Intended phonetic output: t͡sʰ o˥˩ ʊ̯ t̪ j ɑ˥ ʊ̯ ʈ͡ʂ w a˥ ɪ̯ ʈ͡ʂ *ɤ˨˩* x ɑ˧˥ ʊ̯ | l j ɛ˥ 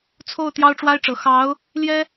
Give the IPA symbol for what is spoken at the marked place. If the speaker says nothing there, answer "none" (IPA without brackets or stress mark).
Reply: ɤ˨˩